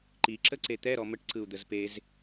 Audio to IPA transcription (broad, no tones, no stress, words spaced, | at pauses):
ǃi ǁəǀet̪ɛ ɾɔməʈ ǀɯu̯d̪əzpez